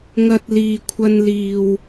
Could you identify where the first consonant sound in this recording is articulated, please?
velar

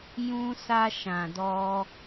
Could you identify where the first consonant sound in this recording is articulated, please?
palatal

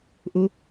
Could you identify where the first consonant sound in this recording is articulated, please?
glottal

